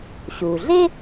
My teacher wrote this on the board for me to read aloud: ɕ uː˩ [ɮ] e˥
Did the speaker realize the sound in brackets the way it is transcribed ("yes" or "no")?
yes